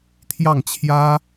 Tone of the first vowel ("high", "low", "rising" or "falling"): falling